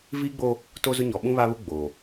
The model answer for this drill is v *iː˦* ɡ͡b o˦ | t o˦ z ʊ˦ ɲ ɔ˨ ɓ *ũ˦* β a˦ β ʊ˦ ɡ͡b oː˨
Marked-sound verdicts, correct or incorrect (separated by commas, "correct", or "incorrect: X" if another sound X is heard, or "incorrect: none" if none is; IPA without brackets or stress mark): correct, correct